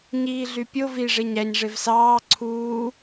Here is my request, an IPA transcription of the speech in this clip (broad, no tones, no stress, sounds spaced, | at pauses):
ɲ iː ɮ y pʲ o v i ʐ e ɲ æ ɲ ʐ e v s ɑː ǀʰ uː